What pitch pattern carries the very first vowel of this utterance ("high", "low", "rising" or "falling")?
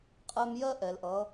high